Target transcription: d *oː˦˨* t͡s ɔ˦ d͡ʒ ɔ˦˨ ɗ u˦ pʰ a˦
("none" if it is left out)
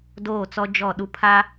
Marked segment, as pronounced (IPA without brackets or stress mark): oː˦˨